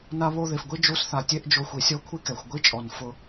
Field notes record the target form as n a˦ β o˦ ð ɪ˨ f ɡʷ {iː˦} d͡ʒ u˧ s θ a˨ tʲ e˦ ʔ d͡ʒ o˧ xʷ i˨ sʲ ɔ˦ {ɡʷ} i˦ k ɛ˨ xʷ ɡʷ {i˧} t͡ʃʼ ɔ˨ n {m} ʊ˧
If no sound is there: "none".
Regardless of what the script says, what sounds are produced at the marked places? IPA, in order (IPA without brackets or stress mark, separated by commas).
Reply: i˦, kʷʰ, i˦, f